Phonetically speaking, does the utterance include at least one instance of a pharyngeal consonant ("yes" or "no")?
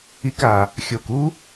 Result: no